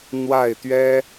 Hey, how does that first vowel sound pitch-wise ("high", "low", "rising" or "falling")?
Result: falling